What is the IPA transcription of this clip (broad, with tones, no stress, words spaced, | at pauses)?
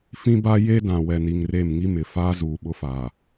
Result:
fĩ˦ba˦ je˦ dã˨wɛ˨ni˨ŋre˦˨m ŋi˦mɪ˨ faː˦ zuː˨ɓʊ˦faː˨